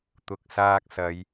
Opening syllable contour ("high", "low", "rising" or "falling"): low